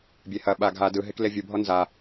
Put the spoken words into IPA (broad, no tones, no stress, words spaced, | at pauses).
bʲehɐɓa ɡʱa dɯɦek levʲubʱɔ nza